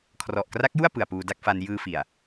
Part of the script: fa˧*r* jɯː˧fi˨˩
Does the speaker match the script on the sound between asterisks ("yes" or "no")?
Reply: no